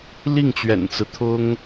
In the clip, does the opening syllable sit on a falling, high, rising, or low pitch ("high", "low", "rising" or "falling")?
falling